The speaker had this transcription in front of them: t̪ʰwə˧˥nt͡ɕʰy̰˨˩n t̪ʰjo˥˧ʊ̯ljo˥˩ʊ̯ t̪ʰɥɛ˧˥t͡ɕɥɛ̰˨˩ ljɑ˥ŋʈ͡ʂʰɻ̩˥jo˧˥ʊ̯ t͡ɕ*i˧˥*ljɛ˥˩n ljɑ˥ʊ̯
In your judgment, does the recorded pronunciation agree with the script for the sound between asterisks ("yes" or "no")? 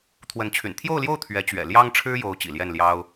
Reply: no